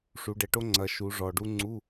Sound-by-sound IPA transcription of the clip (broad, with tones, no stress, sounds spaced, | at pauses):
ʂ u˩˧ ɖ ɛ˩˧ ʈ o˥ ŋ͡ǀ ɐ˩˧ ʃ u˩˧ ʐ ɔ˨˩ ɖ u˥ ŋ͡ǀ u˧˥˧